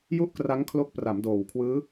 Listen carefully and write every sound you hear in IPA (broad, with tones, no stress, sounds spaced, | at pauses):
j u˥˩ ʔ k r a˦˥ ŋ kʰ l o˦˥ k̚ p r a˩˦ m d oː˨˩ w kʰ w ɯː˦˥